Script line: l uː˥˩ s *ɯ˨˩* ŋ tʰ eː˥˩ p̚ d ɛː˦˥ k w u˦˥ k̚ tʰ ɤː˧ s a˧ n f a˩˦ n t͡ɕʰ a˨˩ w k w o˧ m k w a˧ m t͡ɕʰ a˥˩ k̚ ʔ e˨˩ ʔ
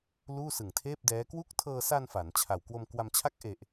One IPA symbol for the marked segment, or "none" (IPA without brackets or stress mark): ɯ˨˩